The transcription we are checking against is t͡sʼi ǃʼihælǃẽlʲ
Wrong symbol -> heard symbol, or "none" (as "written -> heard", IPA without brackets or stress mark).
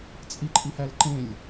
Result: none